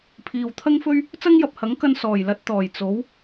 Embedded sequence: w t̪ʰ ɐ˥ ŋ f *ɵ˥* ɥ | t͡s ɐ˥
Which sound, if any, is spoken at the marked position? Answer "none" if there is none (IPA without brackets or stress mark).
ɵ˥